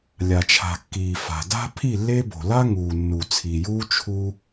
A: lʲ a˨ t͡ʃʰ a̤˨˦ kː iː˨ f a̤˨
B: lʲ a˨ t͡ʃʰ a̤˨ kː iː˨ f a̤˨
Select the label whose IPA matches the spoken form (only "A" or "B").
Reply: B